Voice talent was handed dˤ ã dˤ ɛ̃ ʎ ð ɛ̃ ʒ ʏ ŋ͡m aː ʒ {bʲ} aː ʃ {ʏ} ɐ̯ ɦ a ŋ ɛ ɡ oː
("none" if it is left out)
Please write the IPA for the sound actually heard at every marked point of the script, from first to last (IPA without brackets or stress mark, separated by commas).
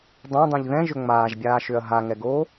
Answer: bʲ, ʏ